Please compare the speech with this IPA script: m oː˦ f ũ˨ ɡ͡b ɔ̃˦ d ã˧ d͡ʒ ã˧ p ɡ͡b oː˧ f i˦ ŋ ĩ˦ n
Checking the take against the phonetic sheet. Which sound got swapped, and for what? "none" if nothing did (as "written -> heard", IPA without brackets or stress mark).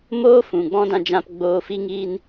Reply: ĩ˦ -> i˦